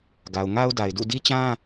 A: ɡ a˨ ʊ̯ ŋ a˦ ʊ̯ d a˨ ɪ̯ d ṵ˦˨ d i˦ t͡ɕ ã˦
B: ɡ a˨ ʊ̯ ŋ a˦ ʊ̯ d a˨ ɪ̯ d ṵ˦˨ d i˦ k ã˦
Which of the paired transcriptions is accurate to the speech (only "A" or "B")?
A